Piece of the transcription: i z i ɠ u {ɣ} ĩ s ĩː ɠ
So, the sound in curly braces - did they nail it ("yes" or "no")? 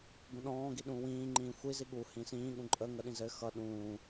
no